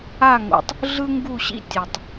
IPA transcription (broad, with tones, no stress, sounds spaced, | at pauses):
a˦˨ ŋ o̰˨ tˤ | ɮ ɯ˦ ŋ ɡ u˦˨ ɕ ḭ˦ tʲ ɛ˨ tˤ